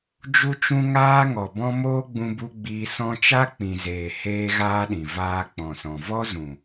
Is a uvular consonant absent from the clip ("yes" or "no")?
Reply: yes